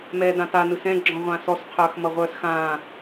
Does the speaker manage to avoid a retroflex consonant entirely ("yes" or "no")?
yes